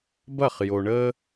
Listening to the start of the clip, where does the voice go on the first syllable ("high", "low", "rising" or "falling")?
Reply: falling